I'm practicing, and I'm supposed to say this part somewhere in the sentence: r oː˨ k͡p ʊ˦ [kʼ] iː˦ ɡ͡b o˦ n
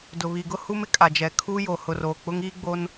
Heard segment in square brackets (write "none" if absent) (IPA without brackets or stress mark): ŋ